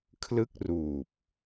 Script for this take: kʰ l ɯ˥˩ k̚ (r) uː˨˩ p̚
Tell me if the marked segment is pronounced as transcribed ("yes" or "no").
yes